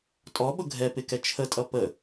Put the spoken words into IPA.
tʼɔɓʊ ɡʱɛpɪkɛ t͡ʃʰətʼʌ pə

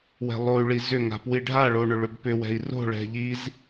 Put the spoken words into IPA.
wɛ̤lˠoy̯ɭi zʏŋa̤ pwiɖʱaɭo ɳʏɭʏbpʏwɛ̤i̯ ro̤ɭɛ̤ ʎiz

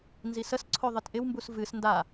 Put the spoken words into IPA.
nzisəsǀʰo ðˤɨtʔɪwmbus vɨs nda

